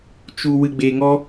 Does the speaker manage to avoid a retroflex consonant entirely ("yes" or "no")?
yes